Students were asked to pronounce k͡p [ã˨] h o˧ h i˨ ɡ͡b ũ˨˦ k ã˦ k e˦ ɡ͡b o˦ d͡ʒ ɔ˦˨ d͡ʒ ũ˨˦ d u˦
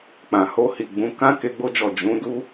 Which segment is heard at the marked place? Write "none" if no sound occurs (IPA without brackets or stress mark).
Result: ã˨